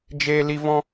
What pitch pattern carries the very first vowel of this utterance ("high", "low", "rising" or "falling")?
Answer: high